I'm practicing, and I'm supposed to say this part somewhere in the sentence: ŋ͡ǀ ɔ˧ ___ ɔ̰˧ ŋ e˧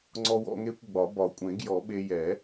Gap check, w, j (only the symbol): w